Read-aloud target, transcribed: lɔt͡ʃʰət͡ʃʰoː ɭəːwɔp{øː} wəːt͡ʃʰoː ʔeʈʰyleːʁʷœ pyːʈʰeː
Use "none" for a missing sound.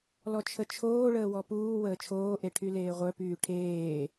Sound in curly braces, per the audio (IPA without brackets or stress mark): uː